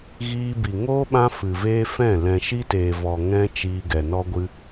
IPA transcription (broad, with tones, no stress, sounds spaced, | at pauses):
ɣ iː˧ b i˨ ŋ oː˦ ɓ ã˦ f ɨ˨ v eː˦ f ɛ̃˦˨ l ɛ̃˨ ʃ i˦ t eː˨ v ɔ˨ ŋ ɛ̃˦ t͡ʃ iː˧ ɡ ɛ˨ n ɔ˦ ɡʷ ɨ˦